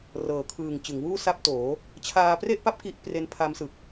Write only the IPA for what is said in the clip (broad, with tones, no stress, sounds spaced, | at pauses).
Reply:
r ɤː˩˦ kʰ ɯː˨˩ ŋ t͡ɕ ɯ˩˦ ŋ w uː˥˩ s a˥˩ p̚ t oː˩˦ | t͡ɕʰ aː˧ p r e˥˩ ʔ p a˦˥ p̚ k i˦˥ ʔ p r e˦˥ n pʰ a˦˥ m s ɯ˨˩ k̚